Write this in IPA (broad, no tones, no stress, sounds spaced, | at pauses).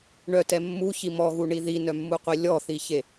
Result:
ɳ œ t ɛ mː u ç i m ɔ ɣ u ɳ i ð i n œ mː u qʷ i lʲ ɔ θ i ç e